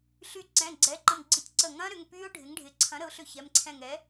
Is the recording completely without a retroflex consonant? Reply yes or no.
no